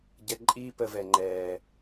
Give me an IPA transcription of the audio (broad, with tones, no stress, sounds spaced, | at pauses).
ɟ ɛ˧ ǃʼ iː˦ p ə˧ v ɛ˨ ŋ͡ǃ ɛː˨